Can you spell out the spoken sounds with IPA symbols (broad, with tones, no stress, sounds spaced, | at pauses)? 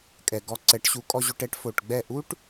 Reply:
kʼ ɛ˩ ɡ ɔ˧ ǀ ɛ˩˥ ʈ ɕ u˩˥ kʼ ɔ˧ ʑ o˧ ʈ ɛ˥ ʈ f o˩ ʈ ɡ͡b ɛ˥˩ ʔ u˥ ʈ